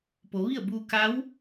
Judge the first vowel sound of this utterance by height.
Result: mid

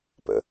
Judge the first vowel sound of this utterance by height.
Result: mid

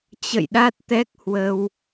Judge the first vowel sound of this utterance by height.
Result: mid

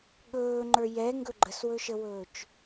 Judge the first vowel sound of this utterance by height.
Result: mid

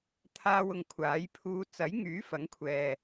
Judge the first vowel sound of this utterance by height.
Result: low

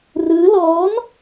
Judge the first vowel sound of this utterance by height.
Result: high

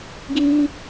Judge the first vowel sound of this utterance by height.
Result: high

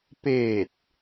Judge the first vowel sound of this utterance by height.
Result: mid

